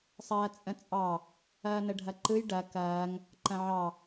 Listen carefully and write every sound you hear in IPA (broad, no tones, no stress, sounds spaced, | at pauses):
sˤ ɐː t͡sʼ ə̃ t͡sʼ ɑ | ɐː n ə ɖʱ ɐ ǃ ɯ j ɖ ɐ k ɐː ŋ | ǃ ɐ̃ ʕ ɑ